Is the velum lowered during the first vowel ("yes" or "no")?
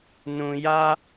yes